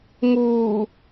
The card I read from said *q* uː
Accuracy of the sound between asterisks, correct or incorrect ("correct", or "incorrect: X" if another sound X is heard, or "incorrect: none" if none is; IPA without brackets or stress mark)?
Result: incorrect: ŋ